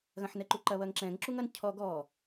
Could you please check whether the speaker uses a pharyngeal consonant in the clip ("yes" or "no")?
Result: yes